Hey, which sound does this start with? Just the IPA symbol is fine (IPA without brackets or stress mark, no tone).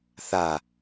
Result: θ